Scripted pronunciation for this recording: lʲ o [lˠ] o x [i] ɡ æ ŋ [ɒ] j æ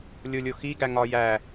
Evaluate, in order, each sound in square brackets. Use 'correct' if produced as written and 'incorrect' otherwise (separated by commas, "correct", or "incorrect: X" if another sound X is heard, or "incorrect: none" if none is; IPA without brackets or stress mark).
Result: incorrect: lʲ, correct, correct